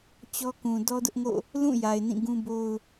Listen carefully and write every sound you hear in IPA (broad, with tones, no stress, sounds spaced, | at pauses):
t͡ɕ ɔ˦ k ũ˨ d ɔ˦ d ʊ˦ ʔ ŋ o̰˦˨ | l ũ˦˨ j a˨ ɪ̯ n ĩ˦˨ ɡ ũ˦ b o˦ ʊ̯